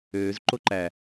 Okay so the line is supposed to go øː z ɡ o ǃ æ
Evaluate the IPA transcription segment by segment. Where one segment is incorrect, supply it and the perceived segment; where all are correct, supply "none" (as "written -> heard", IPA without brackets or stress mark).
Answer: ɡ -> ǃ